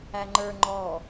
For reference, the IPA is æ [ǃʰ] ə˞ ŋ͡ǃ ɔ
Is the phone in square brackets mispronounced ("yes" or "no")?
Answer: yes